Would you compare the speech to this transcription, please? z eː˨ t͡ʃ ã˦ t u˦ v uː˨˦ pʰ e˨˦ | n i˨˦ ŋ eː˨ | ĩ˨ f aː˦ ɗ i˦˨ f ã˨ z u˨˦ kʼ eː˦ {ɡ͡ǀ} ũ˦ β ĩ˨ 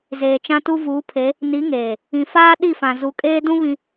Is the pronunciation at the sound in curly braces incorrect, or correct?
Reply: incorrect: d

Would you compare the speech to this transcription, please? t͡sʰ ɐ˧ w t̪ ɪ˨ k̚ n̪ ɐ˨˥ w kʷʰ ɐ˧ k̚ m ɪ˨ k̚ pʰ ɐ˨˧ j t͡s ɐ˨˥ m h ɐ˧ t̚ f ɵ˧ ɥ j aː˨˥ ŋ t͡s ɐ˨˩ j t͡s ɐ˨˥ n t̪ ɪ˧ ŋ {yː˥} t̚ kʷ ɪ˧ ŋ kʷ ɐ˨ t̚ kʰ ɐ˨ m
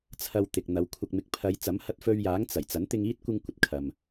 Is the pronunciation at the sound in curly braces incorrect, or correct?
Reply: incorrect: iː˥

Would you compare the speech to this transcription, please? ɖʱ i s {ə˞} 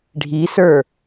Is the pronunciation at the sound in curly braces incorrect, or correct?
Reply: correct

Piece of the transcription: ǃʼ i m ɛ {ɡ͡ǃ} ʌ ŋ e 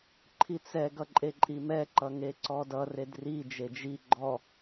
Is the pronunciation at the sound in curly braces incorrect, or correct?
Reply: incorrect: ǃ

